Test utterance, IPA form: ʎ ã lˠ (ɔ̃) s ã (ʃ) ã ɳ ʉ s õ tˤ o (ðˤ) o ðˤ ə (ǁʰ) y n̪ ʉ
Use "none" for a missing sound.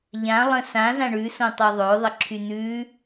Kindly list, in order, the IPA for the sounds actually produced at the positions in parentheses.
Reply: ə̃, z, ðˤ, ǁʰ

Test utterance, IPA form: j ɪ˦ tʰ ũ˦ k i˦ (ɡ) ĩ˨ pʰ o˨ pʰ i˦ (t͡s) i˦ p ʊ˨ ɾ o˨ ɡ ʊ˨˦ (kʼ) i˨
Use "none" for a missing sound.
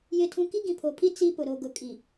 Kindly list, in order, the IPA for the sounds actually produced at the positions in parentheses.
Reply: ɡ, t͡s, kʼ

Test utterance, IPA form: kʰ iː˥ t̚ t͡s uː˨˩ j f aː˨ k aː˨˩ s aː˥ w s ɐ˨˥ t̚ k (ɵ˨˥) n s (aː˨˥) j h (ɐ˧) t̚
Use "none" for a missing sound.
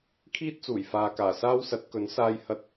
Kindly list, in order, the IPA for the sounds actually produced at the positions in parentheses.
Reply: ɵ˨˥, aː˧, ɐ˧

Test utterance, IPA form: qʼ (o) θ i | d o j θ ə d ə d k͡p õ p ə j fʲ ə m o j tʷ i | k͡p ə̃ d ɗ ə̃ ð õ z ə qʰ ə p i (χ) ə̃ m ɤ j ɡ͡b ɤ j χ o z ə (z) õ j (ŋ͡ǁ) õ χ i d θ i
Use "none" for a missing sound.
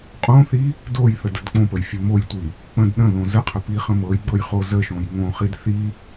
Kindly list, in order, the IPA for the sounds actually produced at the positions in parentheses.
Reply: õ, χ, ʃ, ŋ

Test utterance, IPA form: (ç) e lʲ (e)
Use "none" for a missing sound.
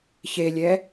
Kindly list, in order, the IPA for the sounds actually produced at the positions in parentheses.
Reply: ç, ɛ

